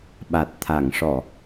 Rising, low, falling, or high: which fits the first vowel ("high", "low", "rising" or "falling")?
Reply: low